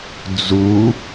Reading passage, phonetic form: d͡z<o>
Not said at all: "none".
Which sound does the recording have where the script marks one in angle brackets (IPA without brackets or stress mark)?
u